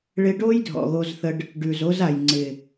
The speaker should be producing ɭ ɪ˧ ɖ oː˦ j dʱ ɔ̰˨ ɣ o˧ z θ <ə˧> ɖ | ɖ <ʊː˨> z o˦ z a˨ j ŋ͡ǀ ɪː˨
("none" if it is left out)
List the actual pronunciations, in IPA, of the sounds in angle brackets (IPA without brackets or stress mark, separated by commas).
ə˧, ʉː˨